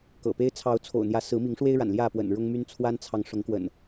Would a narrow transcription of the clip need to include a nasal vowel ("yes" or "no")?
no